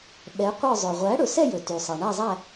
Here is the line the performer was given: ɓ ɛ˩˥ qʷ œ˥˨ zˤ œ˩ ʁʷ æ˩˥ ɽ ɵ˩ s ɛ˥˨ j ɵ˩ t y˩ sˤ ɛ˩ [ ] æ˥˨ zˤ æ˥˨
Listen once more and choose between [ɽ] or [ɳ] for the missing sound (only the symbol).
ɳ